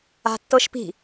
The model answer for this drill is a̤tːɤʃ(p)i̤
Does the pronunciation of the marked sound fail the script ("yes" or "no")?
no